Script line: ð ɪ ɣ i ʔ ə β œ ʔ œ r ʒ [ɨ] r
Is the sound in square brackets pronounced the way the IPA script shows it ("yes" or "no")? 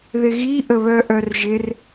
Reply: no